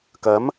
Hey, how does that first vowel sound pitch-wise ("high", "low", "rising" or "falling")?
rising